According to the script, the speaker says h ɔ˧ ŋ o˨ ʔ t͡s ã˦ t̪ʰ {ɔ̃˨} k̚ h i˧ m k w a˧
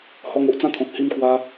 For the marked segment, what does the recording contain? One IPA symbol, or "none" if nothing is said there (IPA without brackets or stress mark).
ɔ̃˨